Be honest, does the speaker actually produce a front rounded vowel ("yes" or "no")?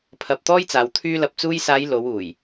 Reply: yes